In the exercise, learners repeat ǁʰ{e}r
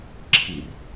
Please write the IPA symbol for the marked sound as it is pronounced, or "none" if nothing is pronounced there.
i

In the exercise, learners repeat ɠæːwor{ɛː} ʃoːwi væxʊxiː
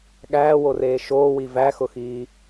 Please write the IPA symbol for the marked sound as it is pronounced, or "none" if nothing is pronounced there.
eː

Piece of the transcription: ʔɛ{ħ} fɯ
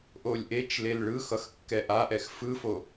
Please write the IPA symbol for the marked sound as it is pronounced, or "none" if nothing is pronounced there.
x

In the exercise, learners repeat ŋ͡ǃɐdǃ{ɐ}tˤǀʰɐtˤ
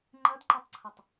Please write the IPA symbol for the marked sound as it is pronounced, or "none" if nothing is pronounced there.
ɐ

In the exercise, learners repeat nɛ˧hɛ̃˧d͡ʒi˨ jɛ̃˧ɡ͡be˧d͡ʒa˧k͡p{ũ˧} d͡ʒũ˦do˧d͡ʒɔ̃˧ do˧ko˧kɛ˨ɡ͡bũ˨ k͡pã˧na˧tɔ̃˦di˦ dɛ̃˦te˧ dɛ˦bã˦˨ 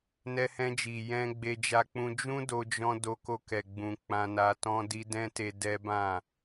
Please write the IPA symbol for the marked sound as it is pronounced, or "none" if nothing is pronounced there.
ũ˧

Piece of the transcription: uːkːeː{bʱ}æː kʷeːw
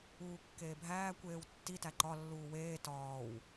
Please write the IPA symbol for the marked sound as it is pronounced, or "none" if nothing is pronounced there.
bʱ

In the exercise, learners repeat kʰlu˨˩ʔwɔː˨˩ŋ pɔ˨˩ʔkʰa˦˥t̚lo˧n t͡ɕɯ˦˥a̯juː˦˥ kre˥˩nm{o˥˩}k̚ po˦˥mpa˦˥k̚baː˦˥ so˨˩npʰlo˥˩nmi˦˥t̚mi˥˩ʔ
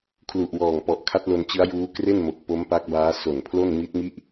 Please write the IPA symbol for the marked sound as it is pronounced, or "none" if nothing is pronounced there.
o˨˩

